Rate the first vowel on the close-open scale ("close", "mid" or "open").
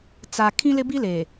open